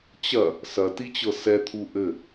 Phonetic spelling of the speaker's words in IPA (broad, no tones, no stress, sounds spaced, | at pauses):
t͡ɕ ɐ | s ɐ t i t͡ɕ ɤ s ɛ t̪ʰ u ʔ ɘ